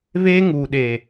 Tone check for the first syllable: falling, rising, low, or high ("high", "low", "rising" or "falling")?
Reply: high